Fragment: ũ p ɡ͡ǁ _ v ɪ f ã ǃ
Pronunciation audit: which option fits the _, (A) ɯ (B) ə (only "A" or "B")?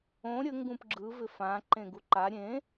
A